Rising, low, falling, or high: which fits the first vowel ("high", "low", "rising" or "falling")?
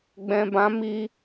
low